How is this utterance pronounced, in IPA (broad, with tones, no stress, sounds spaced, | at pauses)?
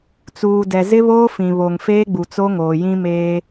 t͡s uː˨ d ɛ˨ z ɪ˦ β oː˦ f ĩ˨ β o˨ ŋ f eː˦ ɡ͡b u˨ t͡s o˦ ŋ oː˨ j ĩ˦ m eː˦